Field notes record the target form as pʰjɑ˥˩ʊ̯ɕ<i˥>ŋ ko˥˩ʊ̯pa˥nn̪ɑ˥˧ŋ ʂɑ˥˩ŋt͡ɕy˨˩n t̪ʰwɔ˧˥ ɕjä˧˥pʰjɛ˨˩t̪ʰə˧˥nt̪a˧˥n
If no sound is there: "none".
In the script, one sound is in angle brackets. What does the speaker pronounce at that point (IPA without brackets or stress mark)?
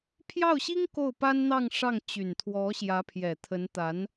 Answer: i˥